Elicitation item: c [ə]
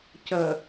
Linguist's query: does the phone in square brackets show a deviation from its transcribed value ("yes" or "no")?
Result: no